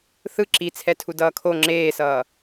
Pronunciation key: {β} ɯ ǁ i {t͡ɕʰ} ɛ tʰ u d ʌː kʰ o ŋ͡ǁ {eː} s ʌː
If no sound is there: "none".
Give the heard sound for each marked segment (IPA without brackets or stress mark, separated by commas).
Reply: θ, t͡sʰ, eː